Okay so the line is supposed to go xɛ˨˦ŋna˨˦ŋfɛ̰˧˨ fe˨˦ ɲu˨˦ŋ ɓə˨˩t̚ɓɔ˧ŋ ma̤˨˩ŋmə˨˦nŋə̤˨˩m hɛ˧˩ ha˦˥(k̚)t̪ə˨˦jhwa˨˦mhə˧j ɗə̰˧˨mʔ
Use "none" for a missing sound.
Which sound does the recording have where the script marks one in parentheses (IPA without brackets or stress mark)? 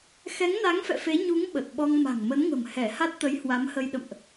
t̚